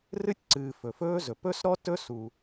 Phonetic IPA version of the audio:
r ɨ˥ tʲ ǀ ɨː˩ f ɵ˩ f ɵː˥ z ɵ˩ p ɵ˥ s ɾ ɔ˥ t ɵ˥ s u˩

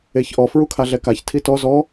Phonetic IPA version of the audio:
e ç ʔ ɔ f ɹ u kʰ a ɮ ɛ k a ç tʰ i t ɔ z ɔ

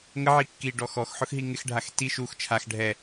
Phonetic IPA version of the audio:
ŋ ə ʕ i kː i ɖ ɔ x ɔ x ħ ʊ x ɦ i ŋ ɪ x ɖʱ a x t i ʃ u x t͡ʃʰ a x ɖʱ ɛ

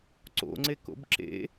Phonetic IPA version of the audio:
ǀ o̰ ŋ͡ǀ e k o̰ b ǁ ḛ

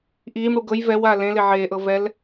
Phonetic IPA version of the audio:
ʔ iː m ɽ u ɡ ɤ j v ɛ w aː l ẽ l e ʕ eː ʔ ɤ v ɛ l

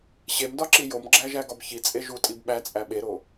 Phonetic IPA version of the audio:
ɕ e m d ɒ ǁ i j o m ɡ͡ǁ æ ʒ æ ɡ ɒ b ç i t͡sʼ e ʒ u tʼ i b ɓ æ t͡sʼ æ ɓ e ɾ o

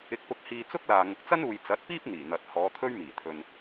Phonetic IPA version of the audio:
ɪ˧ k̚ p ʊ˧ k̚ h iː˧ t͡s ʊ˥ k̚ l aː˨ ŋ ʊ˨ k̚ t͡s ɐ˥ n uː˨ j t͡s ɐ˨˥ t̚ p iː˥ p̚ n̪ iː˨˩ n̪ ɐ˨ t̚ h ɔː˨˧ t̪ʰ ɵ˥ ɥ m iː˨˩ t̪ʰ ɵ˧ n

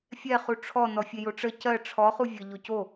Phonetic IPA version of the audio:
fʲ ɛ χ u ʈ͡ʂʰ ɔ n ɔ fʲ e j o ʈ͡ʂ ə c ɜ ʈ͡ʂʰ ɔ χ u vʲ ə ʎ o c o

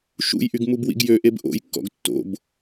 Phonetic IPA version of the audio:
ʃ ṵ j ʔ y ɡ m u b w ḭ ɡ j ø ʔ e b ʔ o̰ j kː ɔ̰ ɡ tː o̰ b

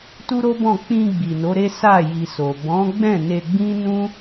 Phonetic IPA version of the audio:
t u˦ ɾ o˦ b ɔ̃˦˨ k͡p ĩ˧ ɡ͡b i˨ n o˨˦ ɾ e˦ s a˦˨ j i˨ s o˨ b ɔ̃˨˦ ɡ͡b ɛ̃˦˨ n e˧ ɡ͡b ĩ˦ n ũ˦

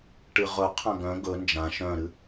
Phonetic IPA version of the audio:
ʈ ɨ ʁ ɵ qʰ ã ɡ œ̃ ɡ ɵ n d͡ʒ ã ʃ œ̃ ɾ ɨ

